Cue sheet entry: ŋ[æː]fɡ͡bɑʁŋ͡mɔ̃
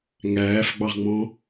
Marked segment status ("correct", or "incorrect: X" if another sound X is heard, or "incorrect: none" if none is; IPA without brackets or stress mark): correct